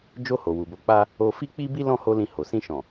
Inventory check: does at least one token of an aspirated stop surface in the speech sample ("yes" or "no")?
no